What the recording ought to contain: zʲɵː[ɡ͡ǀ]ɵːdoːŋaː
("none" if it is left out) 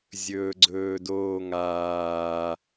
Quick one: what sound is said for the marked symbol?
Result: ɡ͡ǀ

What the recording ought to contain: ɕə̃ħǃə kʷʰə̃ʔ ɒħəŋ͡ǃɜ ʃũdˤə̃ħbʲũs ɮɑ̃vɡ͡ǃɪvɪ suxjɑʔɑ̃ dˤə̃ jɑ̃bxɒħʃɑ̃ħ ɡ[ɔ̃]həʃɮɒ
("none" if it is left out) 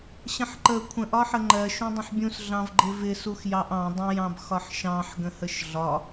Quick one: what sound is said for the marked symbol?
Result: ə̃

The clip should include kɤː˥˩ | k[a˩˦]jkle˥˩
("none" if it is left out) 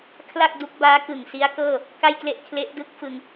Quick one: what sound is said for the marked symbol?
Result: a˥˩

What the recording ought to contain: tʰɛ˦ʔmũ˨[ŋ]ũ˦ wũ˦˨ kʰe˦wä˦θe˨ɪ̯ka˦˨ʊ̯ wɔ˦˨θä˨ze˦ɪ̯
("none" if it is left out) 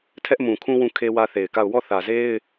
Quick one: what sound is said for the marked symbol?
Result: kʰ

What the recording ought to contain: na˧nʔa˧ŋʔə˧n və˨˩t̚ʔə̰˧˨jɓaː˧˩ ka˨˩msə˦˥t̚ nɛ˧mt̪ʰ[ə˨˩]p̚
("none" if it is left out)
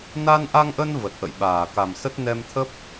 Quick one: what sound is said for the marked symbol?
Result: ə˦˥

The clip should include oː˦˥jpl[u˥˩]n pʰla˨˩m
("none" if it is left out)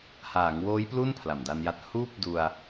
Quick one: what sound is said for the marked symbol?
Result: u˥˩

